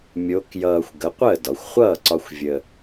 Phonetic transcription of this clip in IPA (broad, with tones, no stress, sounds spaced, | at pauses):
mʲ o˧˥ k j ʌː˧ xʷ ɡ ə˩˥ qʷ əː˥˩ d ɒ˩˧ xʷ χʷ ʌː˥˩ ǀ ɒ˧ xʷ vʲ ə˧